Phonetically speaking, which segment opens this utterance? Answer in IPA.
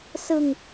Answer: s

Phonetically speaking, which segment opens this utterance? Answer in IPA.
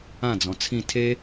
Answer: ã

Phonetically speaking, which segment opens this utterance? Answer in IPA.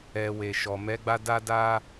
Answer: ɛ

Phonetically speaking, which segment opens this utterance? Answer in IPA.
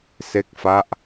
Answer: s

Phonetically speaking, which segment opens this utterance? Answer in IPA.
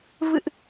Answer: v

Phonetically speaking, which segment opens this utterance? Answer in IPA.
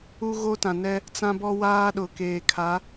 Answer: u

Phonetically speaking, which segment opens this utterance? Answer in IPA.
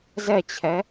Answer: z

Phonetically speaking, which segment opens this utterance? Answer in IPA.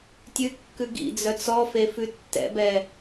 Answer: tʲ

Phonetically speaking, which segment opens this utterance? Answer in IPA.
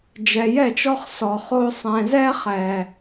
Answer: d͡ʒ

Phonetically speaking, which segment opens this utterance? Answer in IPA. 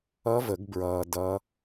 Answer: ʌ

